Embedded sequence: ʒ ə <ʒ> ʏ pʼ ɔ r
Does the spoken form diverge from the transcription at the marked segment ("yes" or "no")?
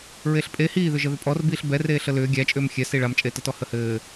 yes